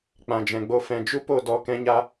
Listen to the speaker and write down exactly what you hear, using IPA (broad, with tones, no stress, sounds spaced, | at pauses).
k͡p ã˨ d͡ʒ ɛ̃˨ ɡ͡b o˧ f ɛ̃˨ d͡ʒ u˦ p o˦˨ d ɔ˧ k ɛ̃˦ ɲ a˦